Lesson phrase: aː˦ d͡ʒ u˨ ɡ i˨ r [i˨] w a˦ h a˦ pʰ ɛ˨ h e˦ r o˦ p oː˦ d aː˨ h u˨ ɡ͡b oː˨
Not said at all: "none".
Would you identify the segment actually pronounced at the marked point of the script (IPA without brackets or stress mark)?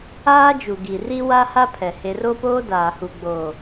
i˦